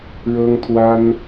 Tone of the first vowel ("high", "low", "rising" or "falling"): high